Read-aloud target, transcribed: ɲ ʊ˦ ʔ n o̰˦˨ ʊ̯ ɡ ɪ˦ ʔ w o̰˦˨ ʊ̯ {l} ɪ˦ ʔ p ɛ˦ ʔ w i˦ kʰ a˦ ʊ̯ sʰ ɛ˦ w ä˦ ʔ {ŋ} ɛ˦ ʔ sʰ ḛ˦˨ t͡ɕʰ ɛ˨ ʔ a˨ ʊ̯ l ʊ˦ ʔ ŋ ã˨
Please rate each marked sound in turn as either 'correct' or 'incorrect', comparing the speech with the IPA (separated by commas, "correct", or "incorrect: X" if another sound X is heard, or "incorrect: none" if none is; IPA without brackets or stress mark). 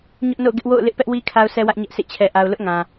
correct, incorrect: ɲ